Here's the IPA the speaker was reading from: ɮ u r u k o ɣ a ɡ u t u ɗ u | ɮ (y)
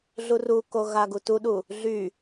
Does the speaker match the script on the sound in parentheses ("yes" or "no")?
yes